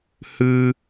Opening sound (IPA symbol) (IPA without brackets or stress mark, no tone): h